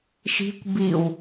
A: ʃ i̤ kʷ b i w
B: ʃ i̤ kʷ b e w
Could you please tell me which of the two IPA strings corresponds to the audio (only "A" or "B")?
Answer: A